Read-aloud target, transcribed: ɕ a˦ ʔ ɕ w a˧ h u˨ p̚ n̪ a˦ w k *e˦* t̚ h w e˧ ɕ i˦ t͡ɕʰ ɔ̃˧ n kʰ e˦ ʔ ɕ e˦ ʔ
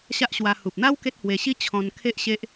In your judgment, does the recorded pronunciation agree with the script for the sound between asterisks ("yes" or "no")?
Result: yes